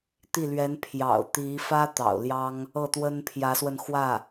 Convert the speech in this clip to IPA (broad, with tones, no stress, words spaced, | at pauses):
t̪i˥˩lɥɛ˧˥n pʰjɑ̰˨˩ʊ̯t̪i˧˥fä˥ t̪ɑ̰˨˩ʊ̯ljɑ˥ŋ | ɤ˥˩t̪wə˥npʰjä˧˥swə˧n xwä˥˩